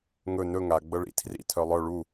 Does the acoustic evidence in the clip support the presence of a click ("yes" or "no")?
no